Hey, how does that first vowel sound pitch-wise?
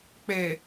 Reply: low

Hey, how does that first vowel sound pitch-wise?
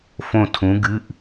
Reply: falling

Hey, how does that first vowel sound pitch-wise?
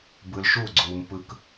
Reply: low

